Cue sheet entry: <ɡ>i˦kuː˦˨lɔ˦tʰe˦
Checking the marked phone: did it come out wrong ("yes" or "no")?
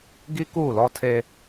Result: no